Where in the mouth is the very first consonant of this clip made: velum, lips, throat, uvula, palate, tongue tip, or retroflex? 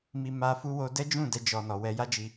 lips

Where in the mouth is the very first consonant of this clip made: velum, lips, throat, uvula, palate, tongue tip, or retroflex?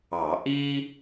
throat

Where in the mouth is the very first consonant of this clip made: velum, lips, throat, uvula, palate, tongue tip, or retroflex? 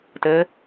tongue tip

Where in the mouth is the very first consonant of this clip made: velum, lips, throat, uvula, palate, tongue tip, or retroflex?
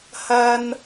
throat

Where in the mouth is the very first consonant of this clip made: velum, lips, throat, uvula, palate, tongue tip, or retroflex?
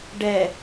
retroflex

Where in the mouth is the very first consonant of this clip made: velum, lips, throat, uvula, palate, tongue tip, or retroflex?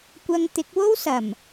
velum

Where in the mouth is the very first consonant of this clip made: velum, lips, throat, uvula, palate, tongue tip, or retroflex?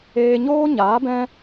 palate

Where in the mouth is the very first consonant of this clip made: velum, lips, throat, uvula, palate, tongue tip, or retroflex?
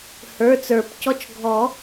throat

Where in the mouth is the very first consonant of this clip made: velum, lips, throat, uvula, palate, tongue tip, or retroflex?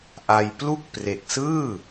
throat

